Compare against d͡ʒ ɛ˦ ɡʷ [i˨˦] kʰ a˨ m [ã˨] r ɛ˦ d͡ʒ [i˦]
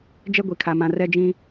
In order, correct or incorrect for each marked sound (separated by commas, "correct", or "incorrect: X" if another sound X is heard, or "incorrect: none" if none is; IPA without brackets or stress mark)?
incorrect: i˨, correct, incorrect: ĩ˦